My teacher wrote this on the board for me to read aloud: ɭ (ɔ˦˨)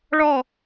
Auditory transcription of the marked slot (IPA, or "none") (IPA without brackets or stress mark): ɔ˦˨